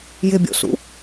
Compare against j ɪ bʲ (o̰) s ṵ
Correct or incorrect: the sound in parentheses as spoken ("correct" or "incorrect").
correct